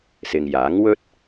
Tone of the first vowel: low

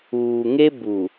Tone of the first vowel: low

